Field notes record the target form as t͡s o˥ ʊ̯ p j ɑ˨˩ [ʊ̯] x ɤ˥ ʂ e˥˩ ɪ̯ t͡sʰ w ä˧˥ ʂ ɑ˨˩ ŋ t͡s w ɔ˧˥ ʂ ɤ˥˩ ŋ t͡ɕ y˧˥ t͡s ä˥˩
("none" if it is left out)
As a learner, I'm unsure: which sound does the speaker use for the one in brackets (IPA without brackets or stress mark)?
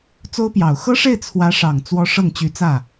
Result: ʊ̯